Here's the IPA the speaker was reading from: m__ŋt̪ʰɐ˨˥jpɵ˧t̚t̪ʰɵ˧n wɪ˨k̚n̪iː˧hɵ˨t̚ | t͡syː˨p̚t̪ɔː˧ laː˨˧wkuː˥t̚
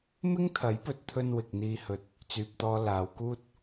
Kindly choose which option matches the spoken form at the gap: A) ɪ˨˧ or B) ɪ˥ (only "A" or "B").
B